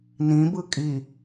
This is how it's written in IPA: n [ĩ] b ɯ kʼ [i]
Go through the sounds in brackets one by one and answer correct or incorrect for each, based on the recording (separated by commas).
correct, correct